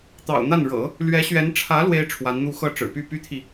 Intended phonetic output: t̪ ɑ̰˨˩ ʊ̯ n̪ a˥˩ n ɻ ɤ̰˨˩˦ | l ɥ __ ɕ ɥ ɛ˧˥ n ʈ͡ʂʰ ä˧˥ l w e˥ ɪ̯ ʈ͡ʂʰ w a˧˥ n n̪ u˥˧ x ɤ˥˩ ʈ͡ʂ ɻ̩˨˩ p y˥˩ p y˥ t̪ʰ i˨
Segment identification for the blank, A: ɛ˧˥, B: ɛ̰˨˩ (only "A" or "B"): A